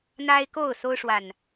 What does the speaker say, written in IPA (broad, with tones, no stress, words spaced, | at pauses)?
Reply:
n̪a˦ɪ̯ko˥˨ʊ̯so˦ʊ̯ ʂwa˨˩n